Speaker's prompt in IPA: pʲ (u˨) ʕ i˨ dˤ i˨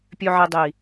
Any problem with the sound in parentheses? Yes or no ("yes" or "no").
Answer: yes